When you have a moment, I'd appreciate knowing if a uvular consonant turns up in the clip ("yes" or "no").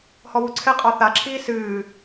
yes